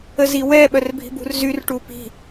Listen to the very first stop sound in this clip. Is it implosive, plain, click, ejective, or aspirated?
implosive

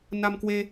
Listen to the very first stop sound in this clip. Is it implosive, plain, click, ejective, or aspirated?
plain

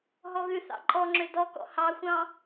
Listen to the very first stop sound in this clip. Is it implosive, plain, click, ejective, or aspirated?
click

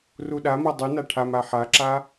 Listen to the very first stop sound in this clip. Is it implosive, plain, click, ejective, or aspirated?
implosive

